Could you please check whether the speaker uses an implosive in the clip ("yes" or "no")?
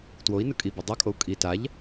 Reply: no